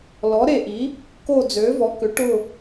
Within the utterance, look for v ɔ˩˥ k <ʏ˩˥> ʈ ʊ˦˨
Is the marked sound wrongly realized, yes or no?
no